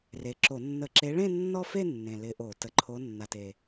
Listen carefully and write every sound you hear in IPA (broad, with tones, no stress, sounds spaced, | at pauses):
r e˨˩ ǁ o˧˩˧ nː ə˧˩˧ ǁ e˨˦ ɭ ẽ˥˧ nː ɔ˥˧ f e˥˧ nː ẽ˨˩ l ɪ˨˦ ʔ o˧˩˧ t ə˨˩ ǃʰ o˨˦ nː a˨˩ t e˨˩